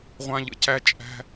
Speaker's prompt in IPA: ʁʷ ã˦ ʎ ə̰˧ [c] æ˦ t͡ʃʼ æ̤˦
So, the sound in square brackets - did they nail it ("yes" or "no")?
yes